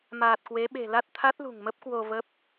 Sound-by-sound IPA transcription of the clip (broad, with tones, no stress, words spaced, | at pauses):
maː˨˩t̚kwe˨˦ɓe̤˨˩la˦˥t̚ t̪ʰa˦˥t̚lṳ˨˩ŋmə˦˥p̚ kwo˧və˦˥p̚